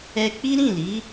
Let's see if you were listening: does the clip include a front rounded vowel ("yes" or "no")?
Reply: no